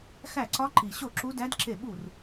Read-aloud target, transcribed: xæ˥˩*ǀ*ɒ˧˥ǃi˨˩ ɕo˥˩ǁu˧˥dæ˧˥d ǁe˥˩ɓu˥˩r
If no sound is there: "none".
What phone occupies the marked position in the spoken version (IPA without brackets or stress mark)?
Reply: ǀ